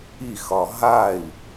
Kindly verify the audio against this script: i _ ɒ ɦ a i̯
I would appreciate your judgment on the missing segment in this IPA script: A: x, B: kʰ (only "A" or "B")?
A